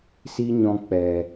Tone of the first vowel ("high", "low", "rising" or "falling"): high